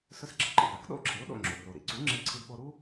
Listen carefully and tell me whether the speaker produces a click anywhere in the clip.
yes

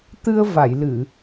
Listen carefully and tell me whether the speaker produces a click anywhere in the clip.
no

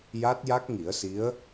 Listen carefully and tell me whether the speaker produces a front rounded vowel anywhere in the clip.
no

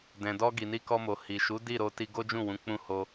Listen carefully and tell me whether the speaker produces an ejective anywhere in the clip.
no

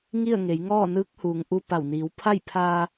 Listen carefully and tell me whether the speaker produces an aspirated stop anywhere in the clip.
yes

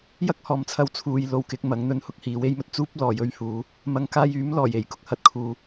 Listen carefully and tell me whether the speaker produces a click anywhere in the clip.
no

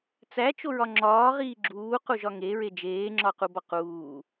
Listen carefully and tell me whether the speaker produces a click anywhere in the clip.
yes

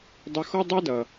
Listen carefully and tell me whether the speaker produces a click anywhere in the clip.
no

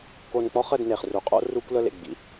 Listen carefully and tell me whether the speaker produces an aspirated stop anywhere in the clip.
no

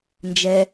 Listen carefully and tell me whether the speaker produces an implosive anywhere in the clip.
no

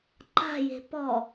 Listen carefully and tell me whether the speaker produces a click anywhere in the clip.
yes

